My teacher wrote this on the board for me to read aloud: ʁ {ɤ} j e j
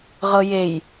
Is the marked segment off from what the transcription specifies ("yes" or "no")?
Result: no